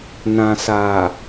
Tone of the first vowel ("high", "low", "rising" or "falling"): low